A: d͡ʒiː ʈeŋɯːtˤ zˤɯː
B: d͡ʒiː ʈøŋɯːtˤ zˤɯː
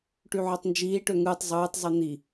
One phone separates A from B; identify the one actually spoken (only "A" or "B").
B